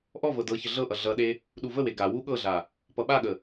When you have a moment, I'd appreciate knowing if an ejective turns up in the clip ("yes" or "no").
no